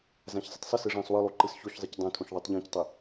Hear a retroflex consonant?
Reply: yes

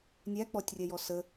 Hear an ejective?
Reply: no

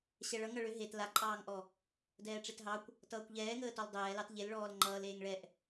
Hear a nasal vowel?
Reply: no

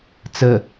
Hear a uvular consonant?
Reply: no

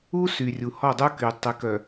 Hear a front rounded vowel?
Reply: yes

